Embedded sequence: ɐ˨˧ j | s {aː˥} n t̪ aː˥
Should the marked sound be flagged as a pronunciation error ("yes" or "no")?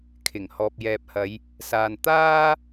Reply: yes